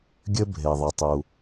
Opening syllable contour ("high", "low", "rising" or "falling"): high